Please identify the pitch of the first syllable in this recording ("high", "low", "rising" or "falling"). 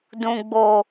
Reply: low